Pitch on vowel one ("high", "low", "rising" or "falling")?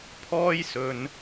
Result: high